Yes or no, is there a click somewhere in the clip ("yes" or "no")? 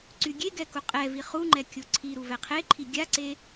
yes